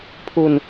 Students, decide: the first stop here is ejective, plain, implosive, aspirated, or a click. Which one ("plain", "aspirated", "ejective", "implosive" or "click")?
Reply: aspirated